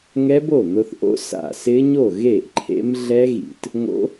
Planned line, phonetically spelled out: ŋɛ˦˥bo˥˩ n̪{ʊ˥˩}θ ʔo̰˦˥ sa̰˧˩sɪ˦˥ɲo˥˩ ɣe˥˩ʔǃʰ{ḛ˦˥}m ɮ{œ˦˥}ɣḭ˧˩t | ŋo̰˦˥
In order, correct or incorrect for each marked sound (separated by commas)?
incorrect, correct, incorrect